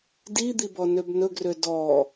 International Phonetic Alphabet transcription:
d i d̪ i b ɔ n ø b n ɵ ɡ r ø d ɔ

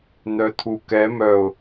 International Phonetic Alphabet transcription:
n̪ œ t̪ʰ u k ɛ m œ ʊ̯

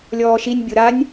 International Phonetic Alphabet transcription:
lʲ ɔː ʃ i nʲ bʲ o ɾ a nʲ

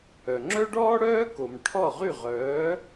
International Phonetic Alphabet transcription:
œ˩ ŋ͡ǁ œ˥ ɖ ɔː˥ ɽ œː˥ k o˩ m ʈʰ ɔ˥˩ ʁ y˥˩ ʁ œː˩˥

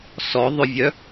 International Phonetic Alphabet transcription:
s ɔ ðˤ ʏ vʲ œ

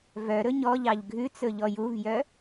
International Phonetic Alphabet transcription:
v œ ɾ ɵ ɲ ɔ ʎ ɑ ʎ ɡʱ ʉ t͡s ɵ ʎ ɔ j u v j œ

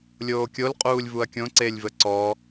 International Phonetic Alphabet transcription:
lʲ oː kʲ o l qʼ uː lʲ v u ɐ̯ kʲ õ ǀ e lʲ v ə ǀ ɔ

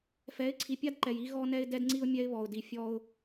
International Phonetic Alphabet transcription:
f ɛ˨˦ ɪ̯ ǀʰ i˨ pʲ a˦ d ǃ ɛ˨ j i˦ ɣ ɔ˦ n ɛ˦ ɪ̯ d ɛ˦ d ŋ͡ǀ i˦ ʊ̯ mʲ ɛ˦ ɪ̯ β ɔ˨ ʊ̯ d i˨ fʲ ɔ˦ ʊ̯

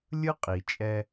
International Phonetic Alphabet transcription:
lʲ ɯ˥ qʼ i˩ t͡ʃʼ ɛ˧

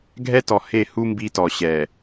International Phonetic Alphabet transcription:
ɡʱ ɛ˦ t ɔ˨ h e˦˨ h u˦ m b i˦ t ɔ˨ ɕ ɛ˨

